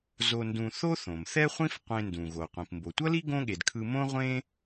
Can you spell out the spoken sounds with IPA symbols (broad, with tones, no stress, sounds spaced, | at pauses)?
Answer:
z o˧ n d ũ˧ θ o˥ θ õ˩ m θ ɛ˥ χʷ ĩ˥ f qʷ ẽ˧ n d ũ˩ ɣ o˩ qʷ ĩ˩ p m b o˩ tʷ ʌ˥ l i˥ ɡ õ˥ ɠ e˩ d kʰ ɯ˧ m õ˥ ʁʷ ẽ˥